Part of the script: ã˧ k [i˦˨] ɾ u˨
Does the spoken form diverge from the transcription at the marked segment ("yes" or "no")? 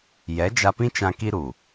yes